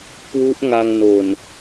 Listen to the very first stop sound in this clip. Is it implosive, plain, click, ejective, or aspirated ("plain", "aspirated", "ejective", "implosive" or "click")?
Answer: plain